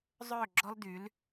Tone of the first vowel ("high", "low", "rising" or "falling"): falling